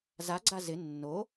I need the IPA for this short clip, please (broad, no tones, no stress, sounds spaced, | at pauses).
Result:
z a ɡ͡ǀ a z ɪ nː o